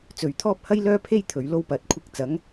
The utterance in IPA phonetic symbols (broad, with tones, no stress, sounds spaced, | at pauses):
t͡s ɵ˨ ɥ t̪ʰ ɔː˥ p̚ h ɐ˥ j l œː˥ pʰ e˥ j t̪ʰ ɵ˨ ɥ l o˥ w p ɐ˨˥ t̚ kʷʰ ɪ˧ k̚ t͡s ɐ˨˥ ŋ